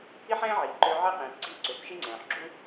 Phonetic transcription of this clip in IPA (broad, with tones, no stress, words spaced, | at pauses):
i˦ħɛ̃ː˦ʕiː˨ǃʏː˧ ʕɛ˦qĩː˨p ɡ͡ǀiː˧ǀʏː˨p ʃi˦ŋ͡ǀɛ̃ː˨ħɡ͡ǁu˦